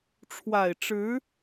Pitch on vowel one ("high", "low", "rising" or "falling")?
low